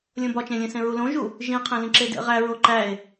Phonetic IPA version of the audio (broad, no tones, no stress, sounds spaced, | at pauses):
lʲ õ b ɒ t͡ʃ ẽ lʲ ẽ s ẽ ɹ u l õ ʒ u | ʒ ĩ qʰ ẽ l ĩ ǁ e d ḛ ʁ æ ɹ o ǃ æ e̯